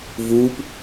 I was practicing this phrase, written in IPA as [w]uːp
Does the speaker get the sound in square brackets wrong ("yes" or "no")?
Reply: yes